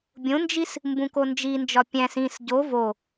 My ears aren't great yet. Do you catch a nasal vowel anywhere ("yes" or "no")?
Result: yes